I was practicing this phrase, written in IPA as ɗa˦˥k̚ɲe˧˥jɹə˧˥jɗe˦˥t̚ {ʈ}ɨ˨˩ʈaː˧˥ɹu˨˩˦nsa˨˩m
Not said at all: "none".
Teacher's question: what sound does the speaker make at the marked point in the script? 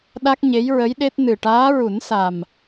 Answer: n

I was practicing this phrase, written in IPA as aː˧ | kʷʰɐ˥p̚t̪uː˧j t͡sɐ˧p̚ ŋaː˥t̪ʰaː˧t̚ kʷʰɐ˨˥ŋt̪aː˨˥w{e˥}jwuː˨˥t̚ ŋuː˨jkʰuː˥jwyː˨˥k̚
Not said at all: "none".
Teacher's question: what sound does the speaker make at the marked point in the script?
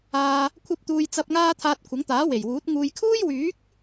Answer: e˨˩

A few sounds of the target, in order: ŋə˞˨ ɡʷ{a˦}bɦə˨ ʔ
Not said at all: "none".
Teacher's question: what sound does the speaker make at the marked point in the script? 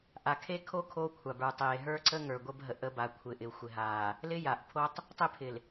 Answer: ə˦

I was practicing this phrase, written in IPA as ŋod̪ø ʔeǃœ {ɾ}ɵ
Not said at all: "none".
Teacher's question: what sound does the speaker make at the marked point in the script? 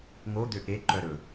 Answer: ɾ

